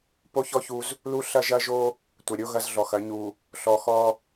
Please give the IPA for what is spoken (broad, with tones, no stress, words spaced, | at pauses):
po˦çɔ˦ çu˦z | lu˦ɬɐ˦ʒɐ˦ ʒo˦ | tʷɐ˨ɾʲo˦ ɣɐ˦zɮɔ˨xɐ˨˦ ɲu˨ | ɬɔ˨xɔ˦